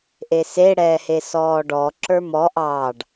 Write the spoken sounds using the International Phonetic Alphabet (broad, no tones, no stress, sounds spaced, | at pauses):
ʔ e s e ɽ ɛː h e s ɔː ɖ ɔ ǁ ə˞ m ɔ ʔ ɑː ɖ